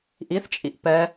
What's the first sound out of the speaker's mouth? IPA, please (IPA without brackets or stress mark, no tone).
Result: ʔ